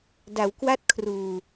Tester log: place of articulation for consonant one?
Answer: alveolar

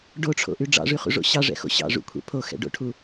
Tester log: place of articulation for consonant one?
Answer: retroflex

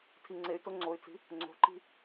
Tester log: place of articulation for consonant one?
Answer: alveolar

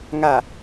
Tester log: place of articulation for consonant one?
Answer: velar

